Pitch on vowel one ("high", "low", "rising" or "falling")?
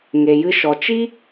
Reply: low